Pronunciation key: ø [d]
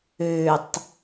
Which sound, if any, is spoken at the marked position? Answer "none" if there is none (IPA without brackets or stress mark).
tˤ